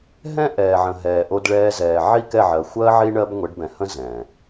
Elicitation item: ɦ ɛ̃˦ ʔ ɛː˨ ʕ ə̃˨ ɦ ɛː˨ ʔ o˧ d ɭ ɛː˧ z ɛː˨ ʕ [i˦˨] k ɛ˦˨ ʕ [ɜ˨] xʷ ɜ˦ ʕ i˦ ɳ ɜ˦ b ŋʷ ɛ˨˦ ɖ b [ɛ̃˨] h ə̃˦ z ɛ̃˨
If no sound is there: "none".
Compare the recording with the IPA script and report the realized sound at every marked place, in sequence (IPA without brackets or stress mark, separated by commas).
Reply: i˦˨, ɜ˨, ɛ̃˨